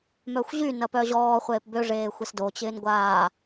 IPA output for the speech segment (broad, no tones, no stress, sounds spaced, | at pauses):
m œ xʷ ʑ y n ɐ p œ ʑ ɔː χʷ eː p b ø ʐ eː xʷ e s d o t͡ɕ ɪː n ɡʷ aː